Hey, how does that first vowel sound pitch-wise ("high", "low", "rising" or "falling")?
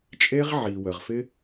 high